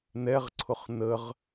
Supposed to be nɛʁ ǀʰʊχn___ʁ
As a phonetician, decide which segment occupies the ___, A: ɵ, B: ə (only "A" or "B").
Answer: B